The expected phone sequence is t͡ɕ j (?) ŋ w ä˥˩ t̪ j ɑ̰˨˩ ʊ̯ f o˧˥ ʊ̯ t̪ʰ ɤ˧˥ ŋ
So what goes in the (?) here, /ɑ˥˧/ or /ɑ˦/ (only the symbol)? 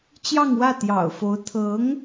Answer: ɑ˥˧